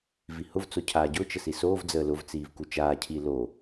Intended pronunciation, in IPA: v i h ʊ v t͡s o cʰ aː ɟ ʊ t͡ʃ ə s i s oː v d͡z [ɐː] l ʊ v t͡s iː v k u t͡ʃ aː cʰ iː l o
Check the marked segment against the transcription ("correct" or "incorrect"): incorrect